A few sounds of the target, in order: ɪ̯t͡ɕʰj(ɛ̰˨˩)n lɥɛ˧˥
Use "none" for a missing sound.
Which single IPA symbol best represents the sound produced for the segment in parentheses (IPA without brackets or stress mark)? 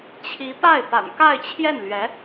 ɛ˥˩